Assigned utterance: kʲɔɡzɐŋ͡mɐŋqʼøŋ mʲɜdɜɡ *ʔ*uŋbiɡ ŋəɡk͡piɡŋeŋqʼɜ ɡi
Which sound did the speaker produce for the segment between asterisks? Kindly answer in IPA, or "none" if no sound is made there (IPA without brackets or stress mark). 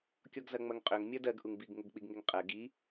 ʔ